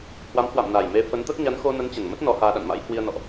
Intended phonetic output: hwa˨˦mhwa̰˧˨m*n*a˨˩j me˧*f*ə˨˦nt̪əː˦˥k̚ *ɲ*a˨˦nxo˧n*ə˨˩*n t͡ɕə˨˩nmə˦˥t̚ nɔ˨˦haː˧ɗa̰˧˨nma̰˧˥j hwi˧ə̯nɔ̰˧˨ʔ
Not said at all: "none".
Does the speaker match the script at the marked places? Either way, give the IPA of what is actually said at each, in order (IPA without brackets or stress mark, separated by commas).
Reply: n, f, ɲ, ə˨˦